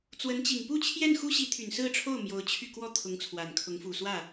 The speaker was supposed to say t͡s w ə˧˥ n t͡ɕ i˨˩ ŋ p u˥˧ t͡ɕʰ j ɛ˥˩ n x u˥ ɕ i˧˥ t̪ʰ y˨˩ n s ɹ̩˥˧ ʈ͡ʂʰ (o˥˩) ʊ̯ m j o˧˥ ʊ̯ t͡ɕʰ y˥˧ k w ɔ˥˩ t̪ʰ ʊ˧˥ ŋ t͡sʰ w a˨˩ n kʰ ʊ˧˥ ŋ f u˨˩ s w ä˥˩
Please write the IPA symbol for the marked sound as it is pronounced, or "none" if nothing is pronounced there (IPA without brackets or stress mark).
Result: o˥˩